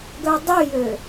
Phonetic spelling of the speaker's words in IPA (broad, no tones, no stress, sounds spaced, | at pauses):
ɡ œ dˤ y j ø